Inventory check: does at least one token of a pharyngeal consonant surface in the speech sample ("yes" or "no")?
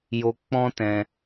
no